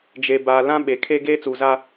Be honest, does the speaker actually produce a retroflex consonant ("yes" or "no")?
no